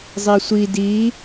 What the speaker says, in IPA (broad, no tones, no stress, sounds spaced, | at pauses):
zˤ i sʷ i d i